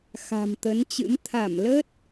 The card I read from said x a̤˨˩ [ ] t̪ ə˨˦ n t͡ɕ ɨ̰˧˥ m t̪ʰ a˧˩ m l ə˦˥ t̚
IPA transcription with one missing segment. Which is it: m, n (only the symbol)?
m